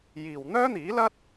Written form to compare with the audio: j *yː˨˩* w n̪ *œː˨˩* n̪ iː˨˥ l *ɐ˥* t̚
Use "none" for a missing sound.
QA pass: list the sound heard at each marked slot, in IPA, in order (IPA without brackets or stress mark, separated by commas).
iː˨˩, œː˥, ɐ˥